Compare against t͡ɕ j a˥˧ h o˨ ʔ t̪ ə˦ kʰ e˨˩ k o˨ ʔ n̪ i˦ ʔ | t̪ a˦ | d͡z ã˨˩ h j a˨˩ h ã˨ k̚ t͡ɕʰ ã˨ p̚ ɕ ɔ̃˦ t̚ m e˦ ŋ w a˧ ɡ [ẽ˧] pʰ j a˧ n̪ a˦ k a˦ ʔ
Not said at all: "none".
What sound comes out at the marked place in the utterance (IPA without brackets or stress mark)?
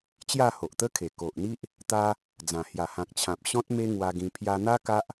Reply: ĩ˧